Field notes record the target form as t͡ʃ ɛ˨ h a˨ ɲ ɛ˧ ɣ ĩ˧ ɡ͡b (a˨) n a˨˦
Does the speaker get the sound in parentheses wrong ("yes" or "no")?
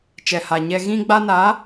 yes